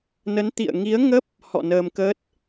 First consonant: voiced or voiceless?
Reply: voiced